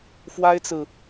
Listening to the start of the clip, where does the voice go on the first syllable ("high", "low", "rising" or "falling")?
high